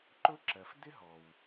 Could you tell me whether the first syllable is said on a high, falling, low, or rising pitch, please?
high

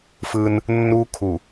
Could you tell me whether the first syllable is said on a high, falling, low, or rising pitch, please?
high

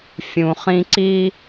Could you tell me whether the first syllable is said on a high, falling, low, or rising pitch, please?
low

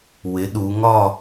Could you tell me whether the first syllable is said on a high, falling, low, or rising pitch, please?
rising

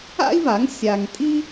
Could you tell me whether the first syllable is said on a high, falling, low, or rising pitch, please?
high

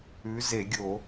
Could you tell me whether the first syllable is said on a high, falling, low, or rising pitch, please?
rising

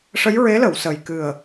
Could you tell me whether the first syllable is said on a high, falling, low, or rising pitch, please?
rising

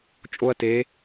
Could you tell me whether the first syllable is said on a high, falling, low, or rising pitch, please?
high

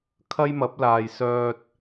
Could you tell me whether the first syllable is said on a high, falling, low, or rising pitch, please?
high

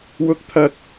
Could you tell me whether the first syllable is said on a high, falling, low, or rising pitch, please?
rising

